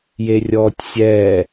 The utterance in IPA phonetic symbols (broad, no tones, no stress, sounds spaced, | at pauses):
j e rʲ ɔː tʲ sʲ ɛ